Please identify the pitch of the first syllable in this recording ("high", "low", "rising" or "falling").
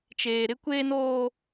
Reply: low